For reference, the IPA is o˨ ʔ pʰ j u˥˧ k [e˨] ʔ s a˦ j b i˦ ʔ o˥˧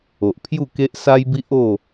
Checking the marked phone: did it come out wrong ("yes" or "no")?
yes